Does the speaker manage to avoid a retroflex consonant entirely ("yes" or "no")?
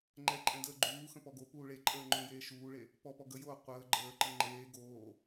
no